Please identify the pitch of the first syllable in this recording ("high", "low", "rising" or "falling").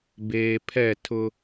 low